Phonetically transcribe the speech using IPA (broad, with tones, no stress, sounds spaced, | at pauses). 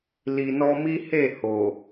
l i˨ n ɔ˧ m i˦ h e˦˨ h o˨